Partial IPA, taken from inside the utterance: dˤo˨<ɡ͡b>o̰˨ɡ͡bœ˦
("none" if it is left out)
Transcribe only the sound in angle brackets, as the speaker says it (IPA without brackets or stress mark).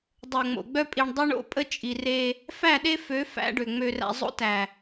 ŋ͡m